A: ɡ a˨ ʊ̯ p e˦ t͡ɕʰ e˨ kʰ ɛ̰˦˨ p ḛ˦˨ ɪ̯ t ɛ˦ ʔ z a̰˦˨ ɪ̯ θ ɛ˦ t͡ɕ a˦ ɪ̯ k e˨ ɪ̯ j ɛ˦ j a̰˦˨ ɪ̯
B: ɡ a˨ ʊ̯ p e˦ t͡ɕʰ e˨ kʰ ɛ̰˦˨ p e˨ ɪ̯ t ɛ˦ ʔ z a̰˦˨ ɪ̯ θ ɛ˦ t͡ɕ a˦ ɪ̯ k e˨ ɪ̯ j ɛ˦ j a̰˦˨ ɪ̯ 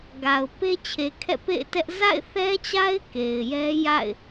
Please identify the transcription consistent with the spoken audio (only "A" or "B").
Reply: A